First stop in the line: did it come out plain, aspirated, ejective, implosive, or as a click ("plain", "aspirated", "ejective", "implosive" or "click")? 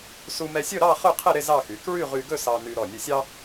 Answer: aspirated